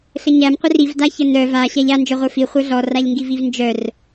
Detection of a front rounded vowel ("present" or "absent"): present